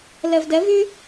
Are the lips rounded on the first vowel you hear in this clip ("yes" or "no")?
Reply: no